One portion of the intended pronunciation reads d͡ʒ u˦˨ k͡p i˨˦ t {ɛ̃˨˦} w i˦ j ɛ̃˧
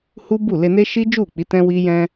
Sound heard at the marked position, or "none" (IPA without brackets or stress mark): ɛ̃˦